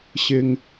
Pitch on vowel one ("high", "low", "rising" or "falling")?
low